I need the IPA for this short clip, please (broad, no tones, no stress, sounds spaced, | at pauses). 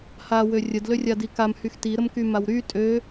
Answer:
h a w ø rʲ ə d l ø rʲ a d i k a m h y x t i ɾ ə m k y m a w ɾ y tʼ ø